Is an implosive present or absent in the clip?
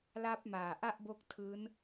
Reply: absent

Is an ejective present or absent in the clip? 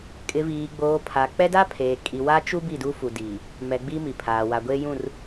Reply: present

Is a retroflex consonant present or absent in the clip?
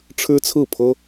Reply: present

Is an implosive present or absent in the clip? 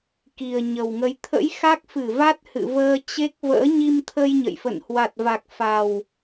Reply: absent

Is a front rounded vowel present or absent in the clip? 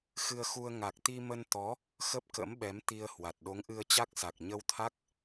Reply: absent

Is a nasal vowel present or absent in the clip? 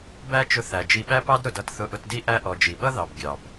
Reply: absent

